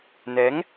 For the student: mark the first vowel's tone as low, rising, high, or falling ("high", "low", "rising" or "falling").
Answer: rising